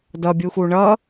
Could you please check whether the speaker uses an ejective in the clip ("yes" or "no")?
no